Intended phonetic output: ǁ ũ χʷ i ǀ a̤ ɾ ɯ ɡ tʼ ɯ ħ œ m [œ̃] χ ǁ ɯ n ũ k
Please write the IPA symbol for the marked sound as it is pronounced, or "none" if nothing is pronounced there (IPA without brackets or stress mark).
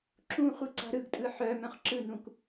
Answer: œ̃